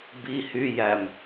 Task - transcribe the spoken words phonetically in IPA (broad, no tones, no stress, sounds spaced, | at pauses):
b i h y j æ m